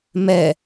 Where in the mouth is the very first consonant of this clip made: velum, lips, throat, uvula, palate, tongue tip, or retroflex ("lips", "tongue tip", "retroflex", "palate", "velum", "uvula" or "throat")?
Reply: lips